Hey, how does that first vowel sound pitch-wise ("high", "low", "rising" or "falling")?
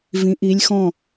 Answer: rising